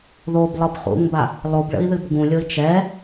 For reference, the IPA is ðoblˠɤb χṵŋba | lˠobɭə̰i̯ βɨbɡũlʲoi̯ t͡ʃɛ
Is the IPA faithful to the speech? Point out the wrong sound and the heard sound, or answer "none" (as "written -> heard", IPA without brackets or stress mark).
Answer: β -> ð